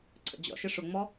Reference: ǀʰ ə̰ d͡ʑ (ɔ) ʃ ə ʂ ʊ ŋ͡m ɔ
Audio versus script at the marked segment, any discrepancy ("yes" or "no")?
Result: yes